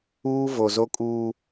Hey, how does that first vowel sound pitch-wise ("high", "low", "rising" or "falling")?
high